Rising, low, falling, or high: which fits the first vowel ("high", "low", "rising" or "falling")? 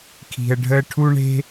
low